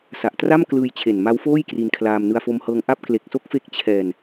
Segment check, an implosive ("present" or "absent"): absent